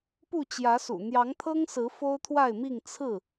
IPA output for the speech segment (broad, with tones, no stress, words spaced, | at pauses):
pu˥˨t͡ɕjä˨˦sṵ˨˩ n̪jɑ˨˦ŋt̪ʰɤ˦ŋsɹ̩˨˦ fo˦ʊ̯t̪ʰwa˥˨ɪ̯mi˥˨ŋ t͡sʰɹ̩˥˨